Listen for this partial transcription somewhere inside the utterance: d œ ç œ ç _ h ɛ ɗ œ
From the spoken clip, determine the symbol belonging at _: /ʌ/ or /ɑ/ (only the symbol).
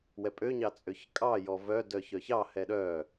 ɑ